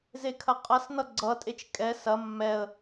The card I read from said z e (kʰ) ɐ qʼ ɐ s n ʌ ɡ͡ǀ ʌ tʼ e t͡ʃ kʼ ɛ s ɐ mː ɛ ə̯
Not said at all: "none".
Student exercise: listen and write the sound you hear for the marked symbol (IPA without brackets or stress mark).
kʰ